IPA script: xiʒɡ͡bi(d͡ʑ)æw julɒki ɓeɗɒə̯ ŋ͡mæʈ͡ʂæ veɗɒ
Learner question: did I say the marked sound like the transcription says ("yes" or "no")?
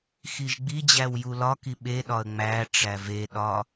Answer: yes